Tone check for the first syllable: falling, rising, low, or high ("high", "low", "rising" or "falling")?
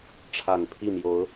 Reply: low